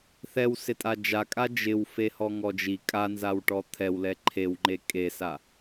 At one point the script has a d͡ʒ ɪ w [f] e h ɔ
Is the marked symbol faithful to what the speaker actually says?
yes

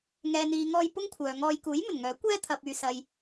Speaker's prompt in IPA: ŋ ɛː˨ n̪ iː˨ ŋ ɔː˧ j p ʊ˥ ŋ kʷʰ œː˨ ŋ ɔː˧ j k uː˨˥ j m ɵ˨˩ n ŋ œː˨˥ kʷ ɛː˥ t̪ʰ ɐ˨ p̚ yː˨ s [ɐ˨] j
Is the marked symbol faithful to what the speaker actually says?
yes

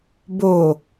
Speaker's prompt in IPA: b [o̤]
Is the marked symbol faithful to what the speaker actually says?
no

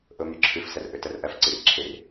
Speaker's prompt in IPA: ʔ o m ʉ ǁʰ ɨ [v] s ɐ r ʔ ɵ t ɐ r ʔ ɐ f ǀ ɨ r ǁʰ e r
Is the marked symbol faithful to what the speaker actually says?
no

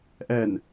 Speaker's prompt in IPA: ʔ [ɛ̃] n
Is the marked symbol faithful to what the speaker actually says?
no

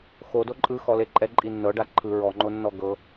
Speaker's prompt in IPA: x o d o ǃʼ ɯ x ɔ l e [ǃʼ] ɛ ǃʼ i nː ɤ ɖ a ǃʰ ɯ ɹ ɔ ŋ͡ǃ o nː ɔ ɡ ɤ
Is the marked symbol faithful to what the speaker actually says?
yes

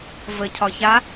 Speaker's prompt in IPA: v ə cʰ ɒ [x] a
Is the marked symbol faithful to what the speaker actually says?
no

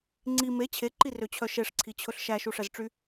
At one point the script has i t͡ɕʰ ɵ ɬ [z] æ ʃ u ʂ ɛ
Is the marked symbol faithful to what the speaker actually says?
no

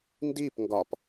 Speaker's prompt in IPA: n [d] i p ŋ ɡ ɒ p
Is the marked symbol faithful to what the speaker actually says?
yes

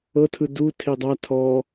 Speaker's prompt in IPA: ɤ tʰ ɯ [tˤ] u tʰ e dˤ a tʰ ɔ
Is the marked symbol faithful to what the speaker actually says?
no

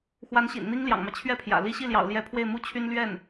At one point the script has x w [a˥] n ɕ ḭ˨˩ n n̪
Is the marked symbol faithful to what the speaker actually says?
no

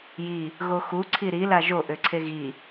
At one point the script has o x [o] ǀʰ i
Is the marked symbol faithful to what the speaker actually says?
no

